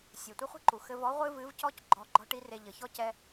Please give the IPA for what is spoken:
sʲ ɛ˩ tʷ ɐ˥ χʷ i̤˥ ǃ u˩ x ɘ˧ v ɔ˧˥ ʁʷ ɨ˥ v ɨ˧˥ v c ɔ˥ c ɡ͡ǃ ɔ˧˥ ɡ͡ǃ ɔ̤˥ ʈ i˥ r e˧ ʎ ɘ˩˧ ç ɔ˥ c ɛ˥

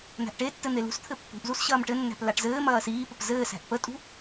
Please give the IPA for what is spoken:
n̪ æ̤ ʔ ʈ e tː ɘ n̪ e l ṳ s t̪ʰ ɘ pː ṳ ʔ z u s ɕ ɐː m ʈ ɘ nː æ̤ p l a ʈ z ɘː m ɐː s iː p ə p z ɘː s æ̤ ʔ p ə tʼ ṳ

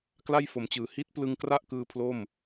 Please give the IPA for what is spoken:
k l a˥˩ j f o˩˦ m t͡ɕ ɯː˩˦ h i˦˥ t̚ p l ɯ˧ ŋ k r a˥˩ ʔ k ɯː˧ pʰ l o˥˩ m

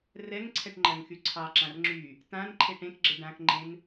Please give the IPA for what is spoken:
r ɛ ŋ ǀʰ ɛ ʈ ŋ͡ǃ ɜ ŋ x y ǀʰ ɑ ǁ ã r ŋ͡ǁ y | t ã n ǃʰ e ʈ ẽ k ɡ͡ǁ ə ɖ ã k ŋ͡ǃ ẽ n

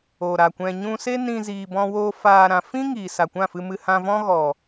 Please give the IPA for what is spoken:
o˨ ɾ a˨ kʷ ɛ̃˧ ɲ ũ˧ s e˦ n ĩ˧ z iː˧ b ɔ̃˦ w oː˦ f aː˧ ɾ ã˧ f ĩ˦ ŋ iː˨ s a˨ kʷ ã˦˨ f ɨ˧ m ɨ˧ h ã˧ v ɔ̃˦ ɣ ɔ˨

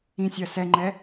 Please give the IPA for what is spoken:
ĩ sʲ ɜ s ɛ ŋ͡ǃ ɛ

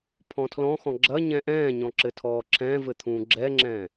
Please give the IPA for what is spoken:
pʰ ɔ̃ tʰ l ɔ̃ x ɔ̃ ɡ͡ǁ ɐ ɲ ɛ̃ ʔ ɛ̃ː ɲ ɔ̃ ǁ ɘ tʰ ɔː ǁʰ ɛ̃ː v ɘ t̪ʰ ũː ɡ͡ǁ ɛ ŋ͡ǁ ɛ̃ː

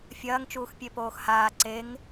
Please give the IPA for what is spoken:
fʲ ɐː ŋ t͡ʃ uː x pʲ e p oː x h aː ǀ e ŋ

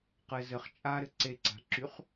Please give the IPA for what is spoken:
q ɘ z ɘ χ t͡ʃʼ a ɾ ɘ ǀ e ǀ a̤ ǁ y χ

